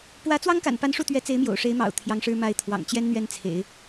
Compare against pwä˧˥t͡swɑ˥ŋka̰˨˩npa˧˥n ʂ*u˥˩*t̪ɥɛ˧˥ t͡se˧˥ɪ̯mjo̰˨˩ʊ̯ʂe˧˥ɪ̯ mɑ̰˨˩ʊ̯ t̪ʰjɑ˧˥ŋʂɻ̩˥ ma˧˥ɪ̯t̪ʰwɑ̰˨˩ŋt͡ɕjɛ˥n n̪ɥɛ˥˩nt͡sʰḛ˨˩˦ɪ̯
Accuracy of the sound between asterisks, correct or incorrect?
correct